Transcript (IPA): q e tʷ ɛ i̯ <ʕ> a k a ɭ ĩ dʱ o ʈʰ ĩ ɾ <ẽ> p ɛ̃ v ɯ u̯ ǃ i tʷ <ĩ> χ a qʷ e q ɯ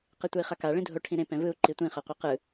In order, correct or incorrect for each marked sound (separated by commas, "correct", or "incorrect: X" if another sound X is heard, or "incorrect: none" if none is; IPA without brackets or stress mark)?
incorrect: χ, correct, correct